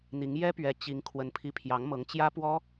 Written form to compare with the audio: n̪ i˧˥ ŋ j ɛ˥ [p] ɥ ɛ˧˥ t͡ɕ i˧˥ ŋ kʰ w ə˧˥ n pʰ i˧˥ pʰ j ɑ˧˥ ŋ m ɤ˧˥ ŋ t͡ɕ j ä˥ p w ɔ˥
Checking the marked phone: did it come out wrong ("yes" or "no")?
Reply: no